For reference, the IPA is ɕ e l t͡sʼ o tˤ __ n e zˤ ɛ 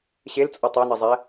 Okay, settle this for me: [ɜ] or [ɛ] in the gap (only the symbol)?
ɛ